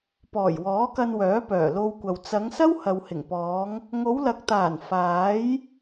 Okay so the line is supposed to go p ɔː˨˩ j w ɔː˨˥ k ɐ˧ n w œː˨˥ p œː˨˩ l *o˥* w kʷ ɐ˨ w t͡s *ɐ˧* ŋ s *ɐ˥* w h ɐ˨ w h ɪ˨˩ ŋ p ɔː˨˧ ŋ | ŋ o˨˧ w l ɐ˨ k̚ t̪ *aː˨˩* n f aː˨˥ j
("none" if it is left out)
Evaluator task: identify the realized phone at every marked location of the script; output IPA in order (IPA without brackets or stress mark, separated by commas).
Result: o˧, ɐ˨˧, ɐ˥, aː˨˩